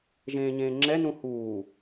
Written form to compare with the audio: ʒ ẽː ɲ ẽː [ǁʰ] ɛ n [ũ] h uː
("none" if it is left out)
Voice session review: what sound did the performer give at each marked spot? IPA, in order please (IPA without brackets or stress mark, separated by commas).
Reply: ŋ͡ǁ, ũ